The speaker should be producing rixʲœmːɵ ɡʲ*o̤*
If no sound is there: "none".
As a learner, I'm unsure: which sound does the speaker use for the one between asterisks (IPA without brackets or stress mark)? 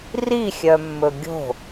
o̤